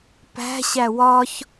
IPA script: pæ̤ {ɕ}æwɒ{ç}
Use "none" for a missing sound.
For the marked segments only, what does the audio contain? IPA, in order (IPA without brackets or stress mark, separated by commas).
ɕ, ç